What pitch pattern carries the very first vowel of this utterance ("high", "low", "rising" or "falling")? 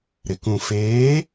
low